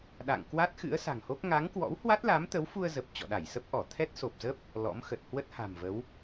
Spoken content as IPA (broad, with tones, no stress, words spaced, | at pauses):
ɗa̰˧˨ŋ kwa˦˥t̚xɨ̰˧˥ə̯ sa̤˨˩ŋho˦˥k̚ ŋa˨˦ŋkwɔ̰˧˥whwa˦˥t̚la˨˦m t̪ə˨˦wfu˧ə̯zə˨˩p̚ t͡ɕɔ̰˧˨ɗa˧˩jsə˦˥p̚ʔɔ˧˩ t̪ʰɛ˦˥t̚so˨˩p̚zə˦˥p̚ | lɔ̰˧˥mxə˨˩t̚ hwə˦˥t̚ha̤˨˩mvə˨˦w